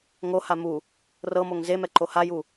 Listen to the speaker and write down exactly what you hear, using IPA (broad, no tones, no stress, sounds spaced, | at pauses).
ŋ o h a m u | r ɤ m o ŋ z e m ɛ ǃ o h a j u